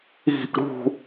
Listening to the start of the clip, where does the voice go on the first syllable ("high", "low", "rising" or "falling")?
falling